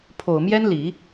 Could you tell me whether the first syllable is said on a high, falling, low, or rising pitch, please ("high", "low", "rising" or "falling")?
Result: low